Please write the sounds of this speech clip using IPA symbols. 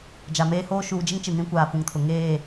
d͡ʒ a˨ m eː˦ h oː˦ ʃ uː˨ d͡ʒ ɪ˦ ŋ t͡ʃ ɪ˨ n ĩ˦ kʷ aː˨ f ũ˨ ŋ tʰ ʊ˨ ŋ eː˦˨

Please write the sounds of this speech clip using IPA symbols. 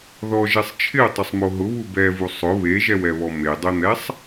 ð ɔ ʒ ɛ sˤ t͡ʃʰ ɪ ʊ̯ tˤ ʊ sˤ m o ɦ ʊ β u b ɛ v u sˤ ʊ β e ʒ ɛ w ɛ β ɔ m e dˤ e n̪ ɛ sˤ

